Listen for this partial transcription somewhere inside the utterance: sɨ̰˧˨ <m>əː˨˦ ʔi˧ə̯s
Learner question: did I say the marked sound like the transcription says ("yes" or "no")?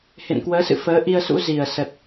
no